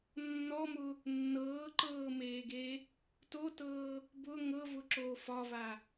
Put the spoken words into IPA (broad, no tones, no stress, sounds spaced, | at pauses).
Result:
nː ɔ m ʊ | nː ɤː ǃ ɤː m eː ɡ e | t o t ɤː | b ʊ ŋ ɤ v ʊ ǁ oː f ɒ v a